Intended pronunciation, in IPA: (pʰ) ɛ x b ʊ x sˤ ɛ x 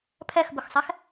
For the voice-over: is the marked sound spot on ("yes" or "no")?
yes